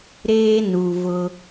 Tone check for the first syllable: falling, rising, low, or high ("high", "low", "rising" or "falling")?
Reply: high